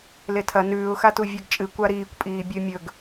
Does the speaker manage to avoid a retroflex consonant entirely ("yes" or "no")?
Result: yes